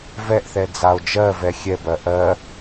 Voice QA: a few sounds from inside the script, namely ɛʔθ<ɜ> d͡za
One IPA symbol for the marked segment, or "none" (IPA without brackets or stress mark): ɛ